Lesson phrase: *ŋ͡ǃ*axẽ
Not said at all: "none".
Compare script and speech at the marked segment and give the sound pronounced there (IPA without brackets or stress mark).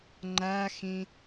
ŋ͡ǃ